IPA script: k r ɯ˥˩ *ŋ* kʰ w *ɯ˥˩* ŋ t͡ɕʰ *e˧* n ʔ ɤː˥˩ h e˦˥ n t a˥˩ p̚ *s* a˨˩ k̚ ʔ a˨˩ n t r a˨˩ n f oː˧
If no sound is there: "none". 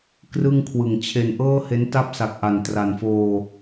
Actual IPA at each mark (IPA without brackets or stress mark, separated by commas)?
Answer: ŋ, ɯ˨˩, e˧, s